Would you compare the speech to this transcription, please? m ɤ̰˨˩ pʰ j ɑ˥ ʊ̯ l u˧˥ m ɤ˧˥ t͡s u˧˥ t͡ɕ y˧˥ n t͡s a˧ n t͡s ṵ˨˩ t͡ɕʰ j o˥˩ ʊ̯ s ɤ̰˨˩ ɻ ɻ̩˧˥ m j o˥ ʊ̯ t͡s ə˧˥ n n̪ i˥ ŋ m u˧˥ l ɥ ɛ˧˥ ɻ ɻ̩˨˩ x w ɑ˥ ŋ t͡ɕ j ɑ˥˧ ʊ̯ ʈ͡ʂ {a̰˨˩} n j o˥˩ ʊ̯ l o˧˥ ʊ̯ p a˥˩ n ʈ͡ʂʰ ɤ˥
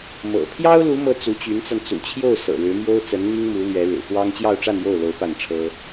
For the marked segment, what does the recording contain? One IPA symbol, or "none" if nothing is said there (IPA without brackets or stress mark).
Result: a˥˧